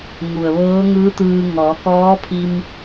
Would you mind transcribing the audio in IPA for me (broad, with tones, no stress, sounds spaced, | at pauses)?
ŋ u˩ ə̯ ʋ ɤː˧˥ ŋ ɯː˧˥ t̪ ɯː˧ ŋ ɔː˩˧ k ɔː˧˥ pʰ i˧ m